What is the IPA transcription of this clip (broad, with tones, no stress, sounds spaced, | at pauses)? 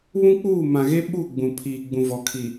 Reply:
β ũ˦ k͡p uː˦˨ m ã˨ ɣ e˦ ɓ u˦˨ ɡ͡b ũ˨ pʰ iː˨ ɡ͡b ũ˨ v ɔ˨ kʰ i˨